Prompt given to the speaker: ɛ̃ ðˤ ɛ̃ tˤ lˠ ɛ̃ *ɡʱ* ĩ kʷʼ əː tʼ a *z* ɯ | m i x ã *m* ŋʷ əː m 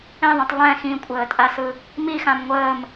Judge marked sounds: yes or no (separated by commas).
no, no, yes